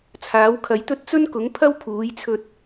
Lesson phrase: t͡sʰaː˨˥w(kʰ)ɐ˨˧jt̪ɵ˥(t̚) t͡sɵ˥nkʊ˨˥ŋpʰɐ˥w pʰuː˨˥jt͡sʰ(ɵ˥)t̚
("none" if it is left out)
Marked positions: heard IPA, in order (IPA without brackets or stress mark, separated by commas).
kʰ, t̚, ɵ˧